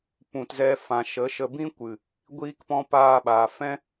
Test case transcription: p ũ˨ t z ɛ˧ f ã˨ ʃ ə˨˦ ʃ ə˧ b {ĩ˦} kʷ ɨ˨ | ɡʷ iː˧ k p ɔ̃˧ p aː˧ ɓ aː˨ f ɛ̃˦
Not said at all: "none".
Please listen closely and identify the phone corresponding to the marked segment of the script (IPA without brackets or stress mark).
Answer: ĩ˦